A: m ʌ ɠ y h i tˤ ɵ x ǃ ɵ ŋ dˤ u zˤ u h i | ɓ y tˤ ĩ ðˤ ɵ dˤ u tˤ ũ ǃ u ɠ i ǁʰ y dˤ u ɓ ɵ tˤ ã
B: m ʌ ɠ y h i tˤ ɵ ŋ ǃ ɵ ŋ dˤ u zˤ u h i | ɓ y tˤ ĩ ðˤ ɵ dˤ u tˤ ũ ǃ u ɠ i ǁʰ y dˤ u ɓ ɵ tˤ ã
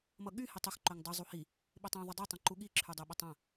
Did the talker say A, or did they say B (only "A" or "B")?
A